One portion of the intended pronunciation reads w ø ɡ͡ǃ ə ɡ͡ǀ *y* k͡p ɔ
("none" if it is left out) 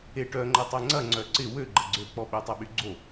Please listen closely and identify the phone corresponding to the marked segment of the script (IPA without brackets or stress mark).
ø